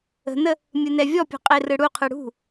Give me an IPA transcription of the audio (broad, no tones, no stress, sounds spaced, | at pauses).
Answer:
ə̤ n ə | mʲ ɯ n ɛ vʲ ɔ pʲ ṳ qʼ e r ɯ ɽ u qʰ ɯ ɽ ṳ